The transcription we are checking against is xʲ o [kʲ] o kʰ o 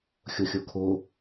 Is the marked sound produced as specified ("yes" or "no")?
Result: no